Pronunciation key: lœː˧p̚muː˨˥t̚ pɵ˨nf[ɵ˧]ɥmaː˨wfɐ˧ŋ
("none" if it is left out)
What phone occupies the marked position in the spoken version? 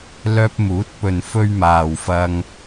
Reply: ɵ˧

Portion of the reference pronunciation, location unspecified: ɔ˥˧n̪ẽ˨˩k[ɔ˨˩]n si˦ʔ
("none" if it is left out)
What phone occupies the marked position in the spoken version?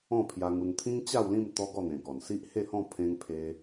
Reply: ɔ˨˩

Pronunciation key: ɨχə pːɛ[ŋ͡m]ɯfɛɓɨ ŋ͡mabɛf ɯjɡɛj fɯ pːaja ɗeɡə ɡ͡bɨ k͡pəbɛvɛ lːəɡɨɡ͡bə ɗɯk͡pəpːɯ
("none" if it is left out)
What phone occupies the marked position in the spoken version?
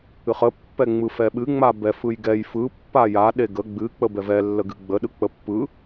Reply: ŋ͡m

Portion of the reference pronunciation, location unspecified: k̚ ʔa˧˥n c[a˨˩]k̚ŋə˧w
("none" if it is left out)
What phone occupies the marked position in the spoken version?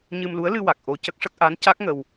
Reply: a˦˥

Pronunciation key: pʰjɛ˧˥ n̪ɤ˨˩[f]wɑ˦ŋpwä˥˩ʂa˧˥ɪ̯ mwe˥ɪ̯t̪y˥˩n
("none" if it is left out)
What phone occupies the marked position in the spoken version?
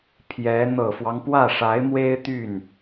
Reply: f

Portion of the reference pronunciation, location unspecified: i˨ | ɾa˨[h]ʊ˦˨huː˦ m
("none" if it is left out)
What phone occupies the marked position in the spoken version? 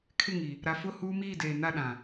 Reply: f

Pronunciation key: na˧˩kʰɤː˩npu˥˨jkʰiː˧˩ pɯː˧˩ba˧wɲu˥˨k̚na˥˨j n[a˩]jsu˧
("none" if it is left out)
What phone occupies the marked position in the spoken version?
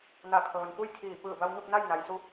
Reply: a˩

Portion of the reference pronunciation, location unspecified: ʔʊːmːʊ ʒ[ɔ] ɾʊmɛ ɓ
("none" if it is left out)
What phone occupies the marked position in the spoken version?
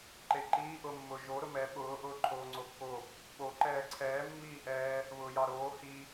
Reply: o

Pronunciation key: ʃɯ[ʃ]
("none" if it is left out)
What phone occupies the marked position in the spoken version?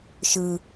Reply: none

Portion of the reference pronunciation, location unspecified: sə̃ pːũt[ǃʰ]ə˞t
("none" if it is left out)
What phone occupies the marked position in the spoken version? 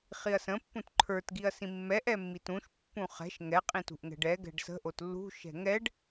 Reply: ǃʰ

